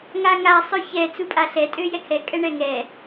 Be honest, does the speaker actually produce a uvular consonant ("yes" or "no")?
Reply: no